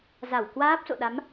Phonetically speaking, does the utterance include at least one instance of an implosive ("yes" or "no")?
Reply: yes